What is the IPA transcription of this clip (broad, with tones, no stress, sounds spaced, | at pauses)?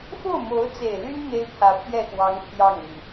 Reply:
f o˥˩ ʊ̯ m o˧˥ ʊ̯ t͡s e˨˩ ɪ̯ l y˥ n n̪ e˥ ɪ̯ pʰ ä˧˥ pʰ j ɛ˥˩ x w ɑ˧˥ ŋ t̪ʰ j ɑ˥˩ ŋ n̪ y˩